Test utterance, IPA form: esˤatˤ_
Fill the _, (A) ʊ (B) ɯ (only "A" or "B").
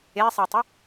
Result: A